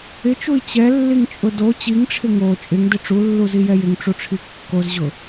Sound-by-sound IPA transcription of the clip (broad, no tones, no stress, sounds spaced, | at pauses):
ɪ t͡ʃ u i̯ t͡ɕ ɛ lː i ŋ t͡ʃʼ ʊ d o t͡ɕ i ŋ ʈ͡ʂʰ ɪ ŋ o t͡ʃʼ ɪ ŋ d ɪ ʈ͡ʂ u lː u z i j ɛ j ɪ ŋ ʈ͡ʂ u ʈ͡ʂʰ i kː o z ʑ ʊ